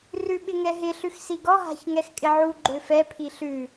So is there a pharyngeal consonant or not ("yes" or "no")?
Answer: yes